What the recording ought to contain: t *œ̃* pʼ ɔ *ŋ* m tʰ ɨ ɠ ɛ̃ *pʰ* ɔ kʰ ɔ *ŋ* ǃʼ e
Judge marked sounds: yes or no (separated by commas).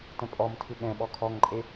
no, no, no, yes